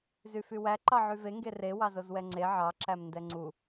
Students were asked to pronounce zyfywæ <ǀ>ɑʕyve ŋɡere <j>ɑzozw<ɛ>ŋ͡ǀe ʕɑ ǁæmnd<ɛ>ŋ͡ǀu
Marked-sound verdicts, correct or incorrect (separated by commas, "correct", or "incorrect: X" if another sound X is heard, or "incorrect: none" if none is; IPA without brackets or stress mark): incorrect: ǃ, incorrect: w, correct, correct